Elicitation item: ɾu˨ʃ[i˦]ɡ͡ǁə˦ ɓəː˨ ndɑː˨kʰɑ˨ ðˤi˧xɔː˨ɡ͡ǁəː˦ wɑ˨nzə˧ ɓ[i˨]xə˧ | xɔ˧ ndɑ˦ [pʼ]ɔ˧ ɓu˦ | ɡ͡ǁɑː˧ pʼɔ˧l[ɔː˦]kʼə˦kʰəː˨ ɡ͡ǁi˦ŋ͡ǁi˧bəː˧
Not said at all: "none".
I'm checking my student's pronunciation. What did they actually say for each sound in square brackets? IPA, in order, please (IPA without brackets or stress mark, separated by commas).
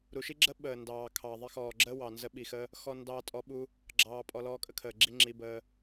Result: i˦, i˨, tʼ, ɔː˦